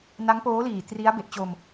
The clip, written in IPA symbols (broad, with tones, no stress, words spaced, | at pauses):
na˦˥ŋpoː˦˥liː˨˩ tri˦˥a̯be˨˩ʔt͡ɕo˧m